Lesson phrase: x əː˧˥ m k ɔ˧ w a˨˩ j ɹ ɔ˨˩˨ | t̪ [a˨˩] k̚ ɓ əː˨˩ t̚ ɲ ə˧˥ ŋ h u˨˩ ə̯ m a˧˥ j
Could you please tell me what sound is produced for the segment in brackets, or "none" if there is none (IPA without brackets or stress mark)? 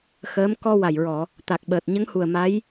a˨˩